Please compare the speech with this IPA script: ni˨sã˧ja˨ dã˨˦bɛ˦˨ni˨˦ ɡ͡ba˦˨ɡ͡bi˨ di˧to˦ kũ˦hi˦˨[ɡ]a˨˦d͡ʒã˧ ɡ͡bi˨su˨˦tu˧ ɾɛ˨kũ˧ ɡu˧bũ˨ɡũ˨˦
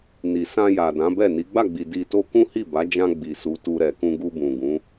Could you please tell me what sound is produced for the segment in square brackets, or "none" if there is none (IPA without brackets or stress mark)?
b